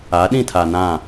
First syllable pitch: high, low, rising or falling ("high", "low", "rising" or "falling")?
rising